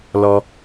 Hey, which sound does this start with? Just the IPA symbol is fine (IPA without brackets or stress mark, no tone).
l